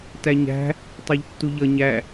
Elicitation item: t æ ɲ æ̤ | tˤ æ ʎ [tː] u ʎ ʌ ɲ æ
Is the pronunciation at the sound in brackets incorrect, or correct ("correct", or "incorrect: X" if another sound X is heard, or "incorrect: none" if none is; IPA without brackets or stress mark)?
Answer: correct